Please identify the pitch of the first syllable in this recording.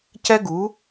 high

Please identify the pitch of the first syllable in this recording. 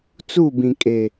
falling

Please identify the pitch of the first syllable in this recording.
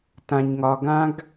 low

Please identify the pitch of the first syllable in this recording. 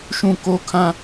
falling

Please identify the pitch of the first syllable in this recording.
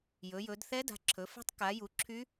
rising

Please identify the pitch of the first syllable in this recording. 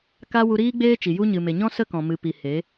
high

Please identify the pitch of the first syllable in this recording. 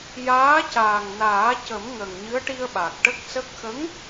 rising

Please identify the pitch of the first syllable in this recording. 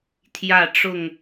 falling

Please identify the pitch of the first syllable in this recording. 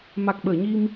low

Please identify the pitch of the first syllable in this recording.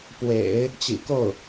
low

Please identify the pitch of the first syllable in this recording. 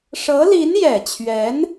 rising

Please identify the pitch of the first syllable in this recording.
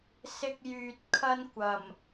high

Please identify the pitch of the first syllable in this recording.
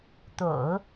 low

